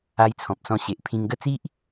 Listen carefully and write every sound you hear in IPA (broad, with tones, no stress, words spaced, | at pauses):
a˧jt͡sʰɔ̃˨p̚sɔ̃˧ ɕe˨ʔpʰĩ˧ŋɡə˥˧ t͡si˦ʔ